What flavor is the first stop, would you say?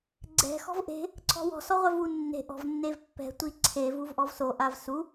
click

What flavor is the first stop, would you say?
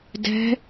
plain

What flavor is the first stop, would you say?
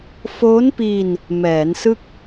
plain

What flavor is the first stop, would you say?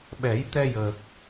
implosive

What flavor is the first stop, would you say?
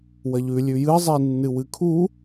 aspirated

